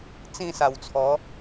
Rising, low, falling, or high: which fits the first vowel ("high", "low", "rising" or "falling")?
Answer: falling